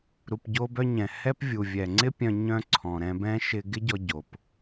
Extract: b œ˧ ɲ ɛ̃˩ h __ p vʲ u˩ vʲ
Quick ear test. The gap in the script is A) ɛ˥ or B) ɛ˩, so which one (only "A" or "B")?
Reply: A